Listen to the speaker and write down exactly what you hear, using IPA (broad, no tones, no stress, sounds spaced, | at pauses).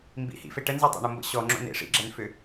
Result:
m b ḭ h ḭ f e ʈ ə n z o tˤ o̰ ɳ o m b ə̰ ɕ ɔ ŋ͡ǁ o̰ n ḛ ʂ ḭ ɡ͡ǁ ɛ n f ʏ